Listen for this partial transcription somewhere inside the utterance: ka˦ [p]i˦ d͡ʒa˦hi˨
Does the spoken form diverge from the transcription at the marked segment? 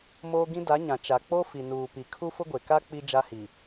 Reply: yes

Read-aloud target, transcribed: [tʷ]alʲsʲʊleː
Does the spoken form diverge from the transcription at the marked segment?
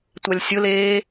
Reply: no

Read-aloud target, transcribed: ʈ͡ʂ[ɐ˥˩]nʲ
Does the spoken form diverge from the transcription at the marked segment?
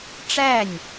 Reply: yes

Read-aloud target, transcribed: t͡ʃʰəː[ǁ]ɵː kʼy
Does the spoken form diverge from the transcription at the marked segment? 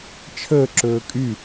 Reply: no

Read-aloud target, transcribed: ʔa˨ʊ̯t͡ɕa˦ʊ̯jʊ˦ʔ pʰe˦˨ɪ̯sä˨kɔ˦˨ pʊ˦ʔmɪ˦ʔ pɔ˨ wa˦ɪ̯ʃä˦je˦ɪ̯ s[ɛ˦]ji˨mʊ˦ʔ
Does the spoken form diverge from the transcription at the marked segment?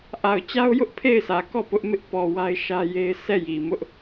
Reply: yes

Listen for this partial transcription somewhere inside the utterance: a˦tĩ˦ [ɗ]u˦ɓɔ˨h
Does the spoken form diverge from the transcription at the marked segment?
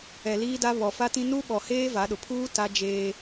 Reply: yes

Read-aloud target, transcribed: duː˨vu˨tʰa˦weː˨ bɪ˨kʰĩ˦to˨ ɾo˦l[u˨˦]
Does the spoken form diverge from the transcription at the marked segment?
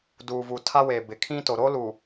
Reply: yes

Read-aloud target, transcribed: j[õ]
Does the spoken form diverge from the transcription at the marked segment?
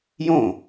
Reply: no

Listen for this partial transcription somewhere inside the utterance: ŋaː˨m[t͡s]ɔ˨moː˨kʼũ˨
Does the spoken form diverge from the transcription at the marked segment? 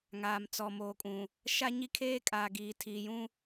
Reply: no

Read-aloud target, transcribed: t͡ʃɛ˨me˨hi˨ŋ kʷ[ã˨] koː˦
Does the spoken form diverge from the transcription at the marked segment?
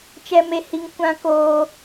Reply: yes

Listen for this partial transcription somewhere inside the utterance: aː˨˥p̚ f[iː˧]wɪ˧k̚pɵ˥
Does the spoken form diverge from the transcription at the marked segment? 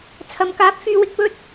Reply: yes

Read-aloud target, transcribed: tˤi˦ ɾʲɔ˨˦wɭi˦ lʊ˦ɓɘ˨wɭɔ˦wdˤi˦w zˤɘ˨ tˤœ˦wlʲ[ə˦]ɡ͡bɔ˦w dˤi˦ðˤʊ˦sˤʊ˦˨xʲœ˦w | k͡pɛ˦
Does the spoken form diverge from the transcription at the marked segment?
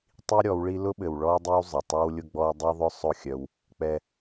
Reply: yes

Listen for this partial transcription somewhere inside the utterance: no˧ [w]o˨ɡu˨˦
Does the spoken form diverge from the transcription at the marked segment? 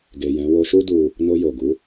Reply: yes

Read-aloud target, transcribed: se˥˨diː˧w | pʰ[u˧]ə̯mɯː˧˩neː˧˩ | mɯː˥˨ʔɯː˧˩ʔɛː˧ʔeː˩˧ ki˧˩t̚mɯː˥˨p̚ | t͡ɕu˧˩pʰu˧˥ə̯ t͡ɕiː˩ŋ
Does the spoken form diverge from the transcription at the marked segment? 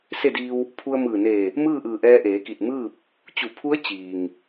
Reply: no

